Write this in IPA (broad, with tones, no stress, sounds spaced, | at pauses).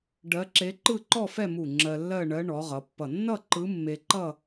ɖ ɜ˧˥ ǁ e˧˥ ǃ ɯ˥˧ ǃ ɔ˥˧ f ɛ˥˧ m u˧˩ ŋ͡ǁ ɜ˧ lː ɜ˥˧ ɳ ɜ˧˥ ɳ ɔ˩˧ ʁ ʌ˩˧ pː ʌ˧˩ nː ʌ˥˧ ǃ ɯ˧˥ mː e˧ ǃ ʌ˥˧